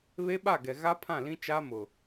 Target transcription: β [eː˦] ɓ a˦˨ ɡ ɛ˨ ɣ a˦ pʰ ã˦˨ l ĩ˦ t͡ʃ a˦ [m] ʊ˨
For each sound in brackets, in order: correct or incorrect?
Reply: incorrect: e˦, correct

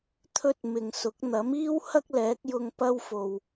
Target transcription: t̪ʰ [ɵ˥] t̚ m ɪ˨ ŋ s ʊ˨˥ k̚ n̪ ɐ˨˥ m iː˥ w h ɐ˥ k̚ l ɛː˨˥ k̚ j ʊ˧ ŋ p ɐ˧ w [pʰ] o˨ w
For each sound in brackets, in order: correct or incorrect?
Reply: incorrect: ɵ˧, incorrect: f

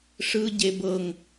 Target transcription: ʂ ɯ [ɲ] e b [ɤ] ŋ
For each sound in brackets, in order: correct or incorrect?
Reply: incorrect: ɟ, correct

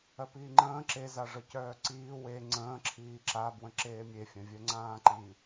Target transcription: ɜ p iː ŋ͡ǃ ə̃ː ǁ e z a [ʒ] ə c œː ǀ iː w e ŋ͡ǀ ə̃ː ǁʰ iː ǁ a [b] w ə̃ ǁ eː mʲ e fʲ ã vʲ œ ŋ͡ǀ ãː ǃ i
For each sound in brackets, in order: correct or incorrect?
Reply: incorrect: ʐ, correct

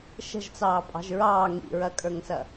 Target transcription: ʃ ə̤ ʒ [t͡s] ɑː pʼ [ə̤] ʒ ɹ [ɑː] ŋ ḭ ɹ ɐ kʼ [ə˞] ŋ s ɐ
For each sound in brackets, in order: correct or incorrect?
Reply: correct, incorrect: ɑ̤, correct, correct

